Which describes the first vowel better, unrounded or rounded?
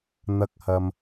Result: unrounded